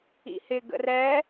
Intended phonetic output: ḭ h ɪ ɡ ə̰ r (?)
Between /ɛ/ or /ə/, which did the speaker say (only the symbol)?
ɛ